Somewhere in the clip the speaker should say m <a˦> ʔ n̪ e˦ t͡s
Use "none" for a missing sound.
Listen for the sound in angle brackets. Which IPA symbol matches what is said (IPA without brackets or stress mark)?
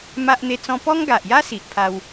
a˦